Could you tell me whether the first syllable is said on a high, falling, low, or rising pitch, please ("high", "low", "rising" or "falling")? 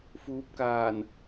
rising